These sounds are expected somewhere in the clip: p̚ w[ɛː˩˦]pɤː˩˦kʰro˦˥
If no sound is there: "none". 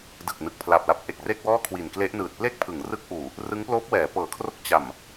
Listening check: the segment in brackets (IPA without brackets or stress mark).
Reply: ɛː˩˦